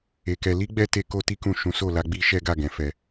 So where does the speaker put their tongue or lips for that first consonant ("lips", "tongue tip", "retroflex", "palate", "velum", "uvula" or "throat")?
velum